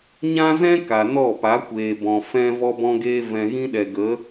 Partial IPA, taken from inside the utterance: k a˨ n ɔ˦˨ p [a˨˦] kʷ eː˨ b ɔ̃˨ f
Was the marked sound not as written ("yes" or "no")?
no